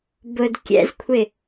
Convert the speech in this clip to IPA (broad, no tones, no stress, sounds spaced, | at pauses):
b ʊ d kʲ ɛ̰ z kʷʰ ɪ